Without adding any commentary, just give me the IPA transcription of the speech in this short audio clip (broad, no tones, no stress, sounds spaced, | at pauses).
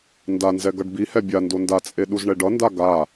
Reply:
n d a n z ɛ ɡ ʌ ɖ b i h ɛ bʲ a n d o n d a t͡sʼ e ɗ u z ɳ ɛ ɖ ʌ n d a ɡ a